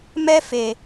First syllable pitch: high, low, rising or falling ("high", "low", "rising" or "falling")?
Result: high